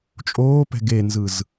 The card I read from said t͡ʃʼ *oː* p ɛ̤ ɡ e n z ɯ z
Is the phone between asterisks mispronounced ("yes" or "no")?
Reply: no